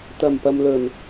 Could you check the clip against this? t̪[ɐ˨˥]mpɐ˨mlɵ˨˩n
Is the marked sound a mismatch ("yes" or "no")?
yes